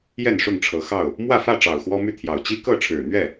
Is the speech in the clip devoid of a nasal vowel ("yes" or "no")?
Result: yes